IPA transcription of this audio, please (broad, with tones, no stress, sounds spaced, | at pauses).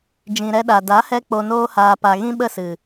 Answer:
d͡ʒ ĩ˨ ɾ ɛ˧ ɗ a˨ d a˨˦ h ɛ˧ k͡p o˧ n oː˦ h aː˧ p a˧ ɣ ĩ˦ ɓ ə˦˨ s ɨ˨